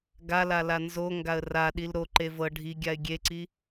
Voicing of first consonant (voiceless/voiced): voiced